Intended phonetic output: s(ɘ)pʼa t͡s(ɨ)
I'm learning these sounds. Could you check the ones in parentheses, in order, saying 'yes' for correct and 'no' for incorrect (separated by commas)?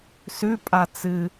no, yes